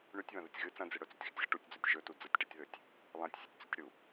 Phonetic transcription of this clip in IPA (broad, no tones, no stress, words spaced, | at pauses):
ɳʉtʲβɐ̃ðɨtʲ ɣɨ t͡sɐ̃d͡zɨ ɽɵt͡sʉtʲxʉtʲɣɐ ʈutʲd͡zutʲ ʒɵtu d͡zɐtʲʈetʲðɵtʲ | lˠãtʲsʲetʲt͡sutʲɽu